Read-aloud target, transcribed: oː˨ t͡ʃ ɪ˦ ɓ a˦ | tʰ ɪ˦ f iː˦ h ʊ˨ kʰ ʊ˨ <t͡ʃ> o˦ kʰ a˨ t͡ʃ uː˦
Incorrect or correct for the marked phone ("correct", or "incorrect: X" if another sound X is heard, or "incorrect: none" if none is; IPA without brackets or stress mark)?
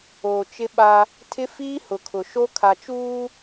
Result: incorrect: ʃ